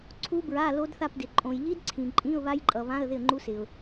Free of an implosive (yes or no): yes